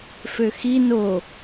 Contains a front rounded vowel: yes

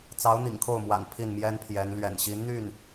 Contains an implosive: no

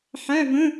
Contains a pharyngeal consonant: yes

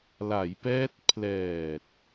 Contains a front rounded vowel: no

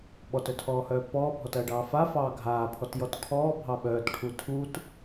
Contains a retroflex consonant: yes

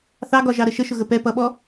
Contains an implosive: yes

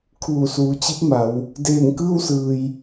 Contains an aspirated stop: yes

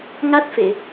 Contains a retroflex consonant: no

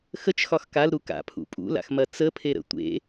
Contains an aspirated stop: yes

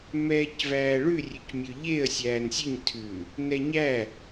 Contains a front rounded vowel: yes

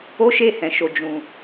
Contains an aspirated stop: no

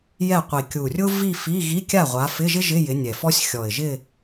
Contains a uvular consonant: yes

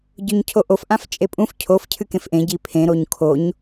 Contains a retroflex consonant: no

